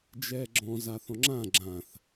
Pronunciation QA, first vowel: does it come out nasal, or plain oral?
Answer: oral